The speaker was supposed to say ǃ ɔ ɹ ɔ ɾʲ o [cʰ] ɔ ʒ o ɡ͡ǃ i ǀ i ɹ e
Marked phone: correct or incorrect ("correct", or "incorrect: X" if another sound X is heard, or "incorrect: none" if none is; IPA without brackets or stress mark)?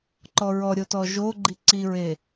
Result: incorrect: t